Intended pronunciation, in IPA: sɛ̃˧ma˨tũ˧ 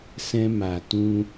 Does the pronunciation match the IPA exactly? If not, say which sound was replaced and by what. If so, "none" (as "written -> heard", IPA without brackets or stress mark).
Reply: none